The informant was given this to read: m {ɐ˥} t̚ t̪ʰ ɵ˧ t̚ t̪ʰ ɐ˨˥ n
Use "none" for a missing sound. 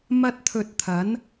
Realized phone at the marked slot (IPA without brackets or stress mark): ɐ˥